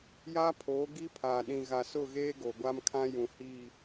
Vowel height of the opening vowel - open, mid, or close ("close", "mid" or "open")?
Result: open